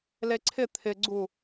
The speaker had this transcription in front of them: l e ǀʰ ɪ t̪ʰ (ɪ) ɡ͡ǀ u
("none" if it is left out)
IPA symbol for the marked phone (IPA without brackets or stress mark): ɪ